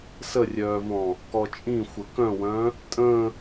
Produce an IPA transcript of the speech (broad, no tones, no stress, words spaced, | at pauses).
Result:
sərʲœːvɔ̃ | kɔt͡ʃʼĩ xʷəkœ̃wœ̃ | tʼə̃